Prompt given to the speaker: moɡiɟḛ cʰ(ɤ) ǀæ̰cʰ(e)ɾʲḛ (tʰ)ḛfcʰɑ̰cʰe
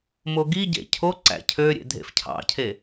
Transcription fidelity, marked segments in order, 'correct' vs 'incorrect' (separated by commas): incorrect, incorrect, incorrect